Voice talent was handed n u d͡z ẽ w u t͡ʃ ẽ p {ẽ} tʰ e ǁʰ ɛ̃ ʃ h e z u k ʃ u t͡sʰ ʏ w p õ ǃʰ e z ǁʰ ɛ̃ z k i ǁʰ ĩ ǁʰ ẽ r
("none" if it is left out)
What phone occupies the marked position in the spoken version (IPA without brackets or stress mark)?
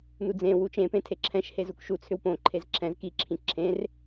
ẽ